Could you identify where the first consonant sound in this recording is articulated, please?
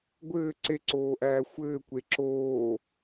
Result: velar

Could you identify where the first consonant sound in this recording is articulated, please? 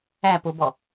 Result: labial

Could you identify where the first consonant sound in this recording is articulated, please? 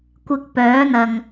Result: velar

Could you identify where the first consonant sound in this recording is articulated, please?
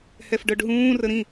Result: glottal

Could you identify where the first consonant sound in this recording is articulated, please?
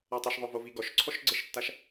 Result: alveolar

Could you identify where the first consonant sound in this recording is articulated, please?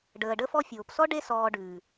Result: retroflex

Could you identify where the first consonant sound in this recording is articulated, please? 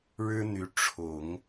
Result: retroflex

